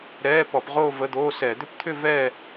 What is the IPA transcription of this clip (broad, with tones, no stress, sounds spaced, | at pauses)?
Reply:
ɾ ɛː˧˥˧ p ɔ˧˩˧ p ʁ oː˥˧ v ə˧˥˧ d̪ oː˧˥˧ s ɛ˧˩˧ d̪ ʏ˥˧ p t̪ʰ ʏ˥˧ v ɛː˥˧